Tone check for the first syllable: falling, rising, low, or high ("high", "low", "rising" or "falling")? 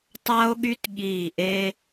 high